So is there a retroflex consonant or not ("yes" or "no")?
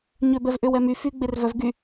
no